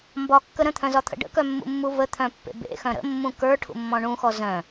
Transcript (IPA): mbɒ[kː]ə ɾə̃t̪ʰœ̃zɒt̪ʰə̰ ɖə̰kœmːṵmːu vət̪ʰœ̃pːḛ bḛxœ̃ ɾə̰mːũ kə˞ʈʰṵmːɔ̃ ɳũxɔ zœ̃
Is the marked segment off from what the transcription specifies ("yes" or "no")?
no